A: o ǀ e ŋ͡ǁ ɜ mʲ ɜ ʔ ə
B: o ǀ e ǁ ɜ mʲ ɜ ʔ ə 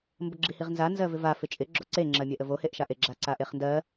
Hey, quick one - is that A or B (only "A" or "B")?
A